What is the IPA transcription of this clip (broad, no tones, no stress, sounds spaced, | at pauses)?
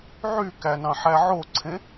ʕ y k æ n ɑ̃ ħ æ ʕ o ǀʰ ẽ